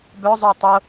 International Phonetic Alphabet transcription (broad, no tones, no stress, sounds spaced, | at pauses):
b œ zˤ o tˤ o